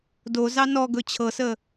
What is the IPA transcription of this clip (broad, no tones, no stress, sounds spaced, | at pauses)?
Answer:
d o z ɑ n ɔ ɡ ɵ t͡ɕʰ ɤ s ə